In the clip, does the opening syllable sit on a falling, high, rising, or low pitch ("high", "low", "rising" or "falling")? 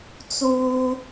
high